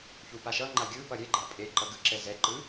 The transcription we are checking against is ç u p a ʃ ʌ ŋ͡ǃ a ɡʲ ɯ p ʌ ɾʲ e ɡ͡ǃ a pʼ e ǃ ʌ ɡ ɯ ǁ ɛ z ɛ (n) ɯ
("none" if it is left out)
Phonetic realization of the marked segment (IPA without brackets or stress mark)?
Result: ǃ